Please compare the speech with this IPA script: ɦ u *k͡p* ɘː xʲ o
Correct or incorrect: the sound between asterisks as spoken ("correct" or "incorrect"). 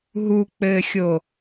correct